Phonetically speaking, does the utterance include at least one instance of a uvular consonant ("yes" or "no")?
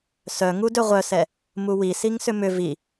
yes